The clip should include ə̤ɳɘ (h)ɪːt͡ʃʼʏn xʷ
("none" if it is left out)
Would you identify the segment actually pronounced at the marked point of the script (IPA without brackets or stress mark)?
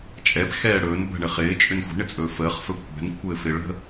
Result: χ